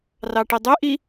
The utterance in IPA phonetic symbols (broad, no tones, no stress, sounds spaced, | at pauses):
r ɑ ʈ i dˤ ø ʔ i